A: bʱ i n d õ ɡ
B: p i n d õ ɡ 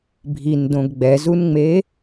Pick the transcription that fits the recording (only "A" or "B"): A